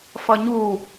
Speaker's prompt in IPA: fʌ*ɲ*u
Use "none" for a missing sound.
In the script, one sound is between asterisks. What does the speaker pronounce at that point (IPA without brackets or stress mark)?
ɲ